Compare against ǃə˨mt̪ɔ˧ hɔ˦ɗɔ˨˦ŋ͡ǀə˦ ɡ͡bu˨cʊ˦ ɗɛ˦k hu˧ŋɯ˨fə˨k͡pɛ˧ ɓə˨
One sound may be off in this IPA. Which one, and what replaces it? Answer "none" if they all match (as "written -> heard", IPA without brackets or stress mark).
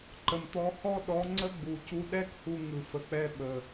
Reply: ʊ˦ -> u˦